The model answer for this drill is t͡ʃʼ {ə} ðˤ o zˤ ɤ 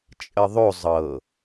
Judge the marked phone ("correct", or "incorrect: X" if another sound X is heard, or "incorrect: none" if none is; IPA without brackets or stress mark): correct